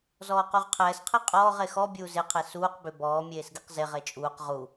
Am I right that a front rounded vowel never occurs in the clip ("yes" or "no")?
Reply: no